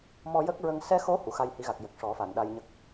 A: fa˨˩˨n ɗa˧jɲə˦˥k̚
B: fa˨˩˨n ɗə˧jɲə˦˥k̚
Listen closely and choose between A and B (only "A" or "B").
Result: A